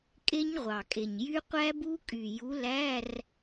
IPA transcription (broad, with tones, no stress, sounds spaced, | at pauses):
kʼ e˦˥ ɲ ʁʷ ɑ˨˩ kʼ e˨˩ ɲ j y˦˥ qʷ æ˦˥ b u˦˥ kʼ y˨˩ j u˨˥ l æ˧˥˧ r